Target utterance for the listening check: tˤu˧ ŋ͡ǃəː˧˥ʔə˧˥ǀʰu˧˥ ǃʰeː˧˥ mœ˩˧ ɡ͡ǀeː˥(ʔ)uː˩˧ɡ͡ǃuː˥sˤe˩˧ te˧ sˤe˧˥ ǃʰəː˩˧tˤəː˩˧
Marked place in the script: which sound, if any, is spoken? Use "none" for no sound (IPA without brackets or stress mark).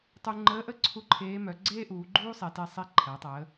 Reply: ʔ